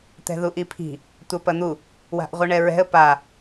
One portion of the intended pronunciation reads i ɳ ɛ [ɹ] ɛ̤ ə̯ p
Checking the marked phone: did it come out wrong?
no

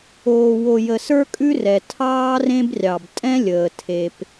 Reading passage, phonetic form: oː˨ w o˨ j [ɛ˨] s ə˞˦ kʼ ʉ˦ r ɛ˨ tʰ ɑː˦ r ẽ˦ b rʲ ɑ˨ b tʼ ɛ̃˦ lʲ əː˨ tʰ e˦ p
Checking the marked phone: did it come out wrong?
yes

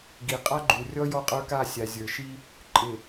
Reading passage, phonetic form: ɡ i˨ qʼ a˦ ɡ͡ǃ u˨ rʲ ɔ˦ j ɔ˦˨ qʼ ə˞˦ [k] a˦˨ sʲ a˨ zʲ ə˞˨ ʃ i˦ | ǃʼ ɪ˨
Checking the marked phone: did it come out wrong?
no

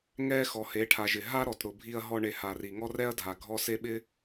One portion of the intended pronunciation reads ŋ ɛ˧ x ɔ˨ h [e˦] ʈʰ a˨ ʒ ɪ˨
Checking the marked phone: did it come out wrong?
yes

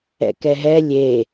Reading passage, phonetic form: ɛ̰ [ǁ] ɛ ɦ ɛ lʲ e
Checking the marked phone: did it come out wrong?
yes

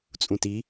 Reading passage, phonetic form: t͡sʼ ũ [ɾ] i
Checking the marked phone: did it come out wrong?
yes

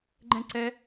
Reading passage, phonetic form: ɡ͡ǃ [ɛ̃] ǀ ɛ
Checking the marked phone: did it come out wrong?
no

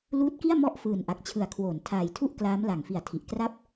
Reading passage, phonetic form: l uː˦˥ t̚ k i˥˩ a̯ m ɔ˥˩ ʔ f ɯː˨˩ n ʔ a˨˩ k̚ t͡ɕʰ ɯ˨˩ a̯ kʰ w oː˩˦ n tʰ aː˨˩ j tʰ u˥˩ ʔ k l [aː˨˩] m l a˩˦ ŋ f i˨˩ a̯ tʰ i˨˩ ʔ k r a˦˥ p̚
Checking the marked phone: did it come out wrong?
yes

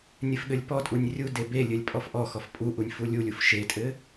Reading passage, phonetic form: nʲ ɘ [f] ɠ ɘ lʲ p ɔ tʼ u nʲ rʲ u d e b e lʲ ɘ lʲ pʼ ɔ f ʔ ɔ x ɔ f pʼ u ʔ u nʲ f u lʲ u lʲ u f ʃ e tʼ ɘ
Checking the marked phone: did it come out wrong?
no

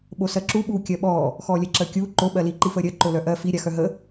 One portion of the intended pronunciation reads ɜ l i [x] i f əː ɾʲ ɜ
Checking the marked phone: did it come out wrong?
yes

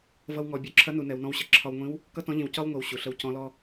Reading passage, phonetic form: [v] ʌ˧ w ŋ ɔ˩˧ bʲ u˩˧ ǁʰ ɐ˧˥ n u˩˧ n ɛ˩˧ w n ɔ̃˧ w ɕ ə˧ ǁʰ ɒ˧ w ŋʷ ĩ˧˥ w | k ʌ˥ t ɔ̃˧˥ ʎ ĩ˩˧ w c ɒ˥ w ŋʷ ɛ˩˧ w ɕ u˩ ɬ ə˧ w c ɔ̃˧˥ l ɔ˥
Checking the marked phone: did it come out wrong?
no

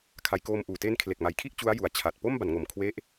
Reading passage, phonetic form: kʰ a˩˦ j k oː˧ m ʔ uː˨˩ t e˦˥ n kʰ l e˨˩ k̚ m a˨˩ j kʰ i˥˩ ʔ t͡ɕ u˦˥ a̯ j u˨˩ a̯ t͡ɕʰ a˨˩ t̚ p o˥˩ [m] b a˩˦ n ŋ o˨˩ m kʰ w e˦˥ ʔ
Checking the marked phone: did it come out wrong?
no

